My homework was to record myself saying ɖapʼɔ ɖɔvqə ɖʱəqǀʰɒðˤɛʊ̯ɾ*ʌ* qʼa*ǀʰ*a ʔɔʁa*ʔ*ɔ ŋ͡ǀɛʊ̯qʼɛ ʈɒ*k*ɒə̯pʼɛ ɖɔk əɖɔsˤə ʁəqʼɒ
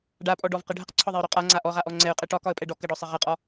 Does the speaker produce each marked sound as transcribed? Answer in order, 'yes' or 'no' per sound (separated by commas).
no, no, yes, yes